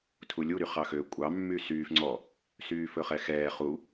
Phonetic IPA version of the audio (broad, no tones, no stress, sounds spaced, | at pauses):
tʰ u lʲ u ɾ y χ ɑ x ø kʷʼ ɑ mː y s yː f ŋ͡ǀ ɔ | s yː f ɵ χ ɛ x ɛː χ u